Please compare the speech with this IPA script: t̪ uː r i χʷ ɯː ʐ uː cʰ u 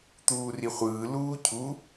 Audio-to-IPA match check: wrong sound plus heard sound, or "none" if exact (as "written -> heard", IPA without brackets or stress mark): ʐ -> l